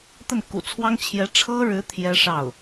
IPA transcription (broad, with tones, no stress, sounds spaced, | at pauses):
t̪ ə˥˩ n k ṵ˨˩ t͡sʰ w ɑ˥ ŋ t͡ɕʰ j ɛ˧˥ ʈ͡ʂʰ ɤ˥ ɻ ɻ̩˧˥ t̪ʰ j ɛ˥ ʂ ɑ˥˩ ʊ̯